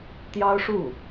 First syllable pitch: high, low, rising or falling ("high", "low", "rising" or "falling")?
high